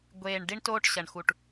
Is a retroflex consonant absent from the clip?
no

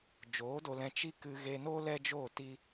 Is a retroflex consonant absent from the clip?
yes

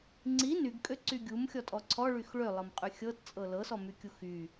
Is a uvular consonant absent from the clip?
no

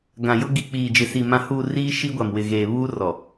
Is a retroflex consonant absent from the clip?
yes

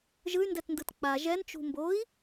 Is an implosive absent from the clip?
yes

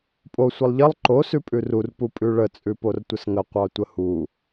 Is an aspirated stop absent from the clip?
yes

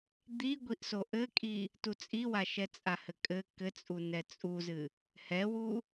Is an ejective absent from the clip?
no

